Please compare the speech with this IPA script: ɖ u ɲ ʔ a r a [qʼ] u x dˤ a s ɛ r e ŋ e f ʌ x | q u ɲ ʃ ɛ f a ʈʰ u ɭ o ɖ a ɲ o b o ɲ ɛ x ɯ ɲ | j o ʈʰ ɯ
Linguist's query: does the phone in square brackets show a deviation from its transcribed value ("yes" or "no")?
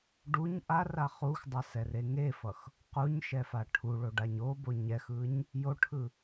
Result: yes